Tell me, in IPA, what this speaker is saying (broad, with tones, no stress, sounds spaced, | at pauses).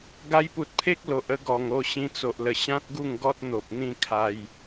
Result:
ɡ a˧ j p u˨ t̚ pʰ e˦ k̚ l o˨ ʔ ə˦ ɡ ɔ˨˩ ŋ o˥˧ ɕ ĩ˧ t͡s o˨ ʔ l ə˨˩ ɕ ã˦ t̚ ɡ u˥˧ ŋ ɡ ɔ˦ t̚ n̪ o˨ p̚ n̪ ĩ˥˧ kʰ a˧ j